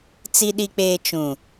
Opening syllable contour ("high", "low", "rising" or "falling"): low